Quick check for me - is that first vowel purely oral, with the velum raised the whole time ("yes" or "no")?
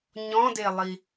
no